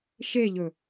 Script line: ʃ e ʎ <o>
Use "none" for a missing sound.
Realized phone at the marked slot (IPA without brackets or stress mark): ɵ